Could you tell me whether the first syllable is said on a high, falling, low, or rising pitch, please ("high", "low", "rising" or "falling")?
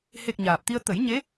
low